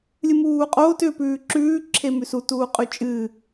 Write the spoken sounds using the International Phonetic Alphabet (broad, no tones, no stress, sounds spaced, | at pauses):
lʲ ɨ m uː qʼ oː t ʏ p ʉː ǁ ʉː ǁʰ e m ʉ s u t uː qʼ ʉ t͡ʃʼ ɨː